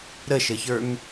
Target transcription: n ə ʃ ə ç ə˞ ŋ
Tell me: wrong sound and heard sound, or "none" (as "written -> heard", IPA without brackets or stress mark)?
n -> ɾ